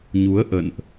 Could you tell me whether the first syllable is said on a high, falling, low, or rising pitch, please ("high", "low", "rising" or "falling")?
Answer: rising